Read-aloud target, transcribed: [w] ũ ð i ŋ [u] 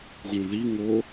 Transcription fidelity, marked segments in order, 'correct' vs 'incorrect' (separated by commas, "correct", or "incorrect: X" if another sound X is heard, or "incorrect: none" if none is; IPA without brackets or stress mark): incorrect: ɣ, incorrect: o